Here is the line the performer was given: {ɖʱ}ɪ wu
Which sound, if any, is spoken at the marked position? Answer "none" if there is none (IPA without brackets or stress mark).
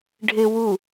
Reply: ɖʱ